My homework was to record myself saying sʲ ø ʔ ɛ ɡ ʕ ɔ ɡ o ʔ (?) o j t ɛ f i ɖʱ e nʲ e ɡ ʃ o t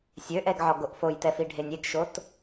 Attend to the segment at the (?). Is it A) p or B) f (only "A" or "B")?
B